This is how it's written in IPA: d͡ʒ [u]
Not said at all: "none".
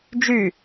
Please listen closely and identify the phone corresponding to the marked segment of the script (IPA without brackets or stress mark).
y